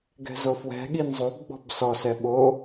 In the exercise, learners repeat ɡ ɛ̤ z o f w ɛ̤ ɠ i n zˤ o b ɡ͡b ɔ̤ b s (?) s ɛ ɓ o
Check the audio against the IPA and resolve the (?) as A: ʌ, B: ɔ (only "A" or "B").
B